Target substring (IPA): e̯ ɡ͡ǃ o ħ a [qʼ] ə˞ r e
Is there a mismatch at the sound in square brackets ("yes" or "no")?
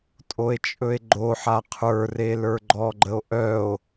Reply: yes